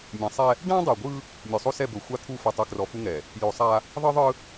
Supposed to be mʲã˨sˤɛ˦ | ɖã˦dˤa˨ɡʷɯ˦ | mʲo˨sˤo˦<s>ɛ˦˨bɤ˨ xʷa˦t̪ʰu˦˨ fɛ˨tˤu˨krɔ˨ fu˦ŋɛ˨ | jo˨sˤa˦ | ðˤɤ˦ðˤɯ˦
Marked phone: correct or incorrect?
correct